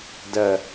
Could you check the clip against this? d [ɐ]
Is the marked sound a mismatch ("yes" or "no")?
no